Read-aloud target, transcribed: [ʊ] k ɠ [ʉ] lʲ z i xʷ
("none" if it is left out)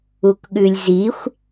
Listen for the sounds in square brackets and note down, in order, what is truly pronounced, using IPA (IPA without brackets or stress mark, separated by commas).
u, ʉ